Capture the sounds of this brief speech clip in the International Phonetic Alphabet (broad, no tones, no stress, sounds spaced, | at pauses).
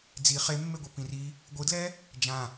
d͡z i χ e mː e ɡʷ e p ĩ r i | ɡʷ ɯ d l ɛ | d͡ʒ ã